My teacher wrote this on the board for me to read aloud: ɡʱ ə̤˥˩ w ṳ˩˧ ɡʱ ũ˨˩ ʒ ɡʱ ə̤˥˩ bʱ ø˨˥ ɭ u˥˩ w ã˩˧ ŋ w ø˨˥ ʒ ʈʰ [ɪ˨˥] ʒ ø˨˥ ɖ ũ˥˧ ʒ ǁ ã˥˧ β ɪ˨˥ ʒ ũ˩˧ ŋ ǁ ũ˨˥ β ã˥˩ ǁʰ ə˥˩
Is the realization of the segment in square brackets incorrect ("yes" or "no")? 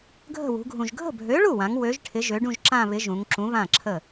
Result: no